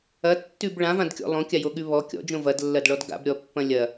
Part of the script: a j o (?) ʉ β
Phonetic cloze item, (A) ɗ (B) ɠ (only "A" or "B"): B